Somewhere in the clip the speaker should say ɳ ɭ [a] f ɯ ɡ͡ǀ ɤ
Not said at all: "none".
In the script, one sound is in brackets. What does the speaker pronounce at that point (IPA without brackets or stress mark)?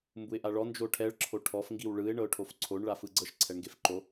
a